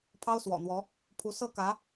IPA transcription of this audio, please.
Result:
pʰɑ˥ʊ̯swɔ̰˨˩n̪wɔ˧˥ | pʰu˧˥ sɤ˥˩kä˧˥

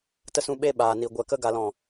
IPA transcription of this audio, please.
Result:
tə˧sũ˧ ɓe˧ ɓaː˨ni˨ ɡʷɛ˨kə˧ ɡa˨lɔ̃˨

